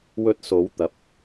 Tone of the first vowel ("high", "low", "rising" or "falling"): high